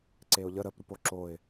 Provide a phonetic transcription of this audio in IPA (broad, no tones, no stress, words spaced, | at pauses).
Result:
ǀeʊ̯ʎə ɾəp ɾupoǁoɪ̯